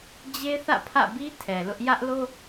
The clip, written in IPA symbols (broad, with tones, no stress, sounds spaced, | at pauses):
d͡ʑ e˦ θ ä̰˦˨ pʰ ä̰˦˨ b i˦ tʰ ɛ˨ l ʊ˦ ʔ j ä˦ ʔ l o˦